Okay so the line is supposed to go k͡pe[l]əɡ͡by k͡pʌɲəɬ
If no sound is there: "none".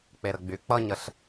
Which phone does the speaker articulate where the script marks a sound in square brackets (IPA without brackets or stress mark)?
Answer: ɾ